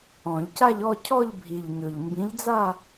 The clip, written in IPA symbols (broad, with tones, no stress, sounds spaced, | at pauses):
ɔ̃˨˩˦ ʎ c a˥˧ ʎ ɔ˥˧ cʰ ɔ˥˧ ʎ bʱ i˨˩ ʎ ɲ ɵ˨˩ ʎ m b ĩ˨˥ ʎ d͡z a˥˧